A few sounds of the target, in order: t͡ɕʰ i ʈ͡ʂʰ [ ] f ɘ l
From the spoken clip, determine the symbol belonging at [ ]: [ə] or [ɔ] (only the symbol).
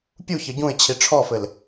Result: ɔ